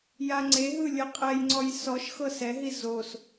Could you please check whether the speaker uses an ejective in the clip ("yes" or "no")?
yes